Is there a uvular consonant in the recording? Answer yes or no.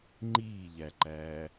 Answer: no